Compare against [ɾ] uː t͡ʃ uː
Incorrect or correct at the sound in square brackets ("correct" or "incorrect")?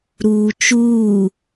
correct